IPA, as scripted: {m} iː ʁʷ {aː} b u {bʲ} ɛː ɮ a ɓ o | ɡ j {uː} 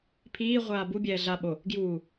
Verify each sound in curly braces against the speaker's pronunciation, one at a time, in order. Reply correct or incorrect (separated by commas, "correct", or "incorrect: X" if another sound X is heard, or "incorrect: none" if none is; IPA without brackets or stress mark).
incorrect: pʰ, correct, correct, correct